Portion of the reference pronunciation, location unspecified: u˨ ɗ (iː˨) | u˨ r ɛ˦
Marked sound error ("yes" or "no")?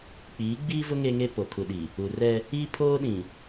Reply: yes